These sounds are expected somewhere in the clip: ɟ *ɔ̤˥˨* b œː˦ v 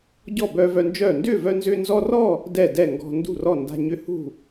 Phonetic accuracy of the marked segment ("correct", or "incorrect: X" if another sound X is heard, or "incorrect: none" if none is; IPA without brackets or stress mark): incorrect: ɔ˥˨